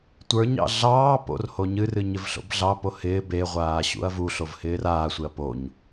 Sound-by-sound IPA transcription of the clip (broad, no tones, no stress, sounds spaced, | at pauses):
tʷ ə˞ ɲ ɑ̰ ɮ ɑː p o̰ r h o ɲ ɨ r ɨ ɲ ɪ v ɬ o̰ b ɮ ɑ p o h ɪː b e ʁʷ aː ɕ ṵ ɐ̯ v u ɬ o v h ɪː r aː sʷ e ɐ̯ p o ɲ